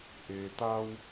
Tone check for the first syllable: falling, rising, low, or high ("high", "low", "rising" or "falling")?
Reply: low